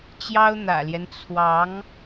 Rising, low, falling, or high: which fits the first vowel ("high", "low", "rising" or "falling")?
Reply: high